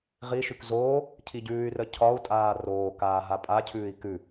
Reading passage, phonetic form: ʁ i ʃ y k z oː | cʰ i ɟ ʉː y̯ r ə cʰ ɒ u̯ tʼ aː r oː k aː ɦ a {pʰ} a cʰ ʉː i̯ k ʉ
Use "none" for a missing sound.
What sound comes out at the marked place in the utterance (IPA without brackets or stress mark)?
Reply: pʼ